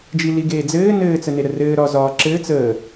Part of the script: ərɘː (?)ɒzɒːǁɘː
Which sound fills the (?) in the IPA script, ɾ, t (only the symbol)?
ɾ